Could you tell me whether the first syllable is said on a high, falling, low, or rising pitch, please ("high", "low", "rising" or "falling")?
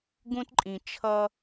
high